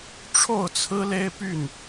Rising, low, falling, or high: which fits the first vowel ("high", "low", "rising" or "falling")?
falling